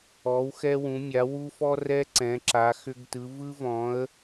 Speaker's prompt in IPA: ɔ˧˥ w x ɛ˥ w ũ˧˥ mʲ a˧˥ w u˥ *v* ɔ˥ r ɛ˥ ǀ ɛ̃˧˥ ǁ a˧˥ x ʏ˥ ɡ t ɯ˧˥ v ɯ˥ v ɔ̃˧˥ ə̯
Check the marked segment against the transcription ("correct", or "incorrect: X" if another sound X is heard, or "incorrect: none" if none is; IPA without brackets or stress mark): incorrect: f